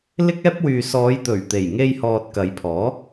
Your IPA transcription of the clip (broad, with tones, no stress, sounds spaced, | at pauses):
l ɪ˥ k̚ ɛː˥ p̚ w yː˨ s ɔː˨˧ j t̪ ɵ˨˩ ɥ t̪ e˨˩ j ŋ e˧ j h ɔː˨ t̚ k ɐ˨˧ j pʰ ɔː˨˥